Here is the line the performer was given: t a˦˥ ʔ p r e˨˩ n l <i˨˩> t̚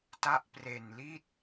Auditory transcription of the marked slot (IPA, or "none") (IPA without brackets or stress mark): i˦˥